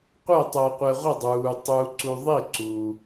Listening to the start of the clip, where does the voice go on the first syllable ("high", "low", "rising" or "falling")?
falling